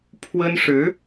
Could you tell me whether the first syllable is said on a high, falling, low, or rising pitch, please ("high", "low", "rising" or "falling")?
high